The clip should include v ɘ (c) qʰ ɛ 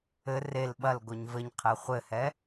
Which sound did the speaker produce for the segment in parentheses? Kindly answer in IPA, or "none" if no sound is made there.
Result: ɲ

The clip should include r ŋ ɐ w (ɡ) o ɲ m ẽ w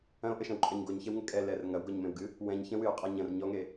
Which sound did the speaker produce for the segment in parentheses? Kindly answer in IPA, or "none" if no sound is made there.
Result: ɡ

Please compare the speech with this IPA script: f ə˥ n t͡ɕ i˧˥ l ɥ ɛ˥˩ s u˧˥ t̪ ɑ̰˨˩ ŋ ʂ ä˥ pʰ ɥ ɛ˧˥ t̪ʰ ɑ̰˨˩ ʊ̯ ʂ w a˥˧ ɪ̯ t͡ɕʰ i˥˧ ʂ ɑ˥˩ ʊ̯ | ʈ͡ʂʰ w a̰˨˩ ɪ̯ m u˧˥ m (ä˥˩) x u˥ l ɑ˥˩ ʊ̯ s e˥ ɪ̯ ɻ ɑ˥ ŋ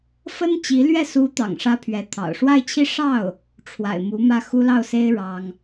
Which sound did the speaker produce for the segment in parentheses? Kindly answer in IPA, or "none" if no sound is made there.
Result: ä˥˩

